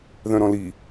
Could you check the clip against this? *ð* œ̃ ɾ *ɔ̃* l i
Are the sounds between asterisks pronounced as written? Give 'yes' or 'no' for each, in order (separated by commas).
yes, yes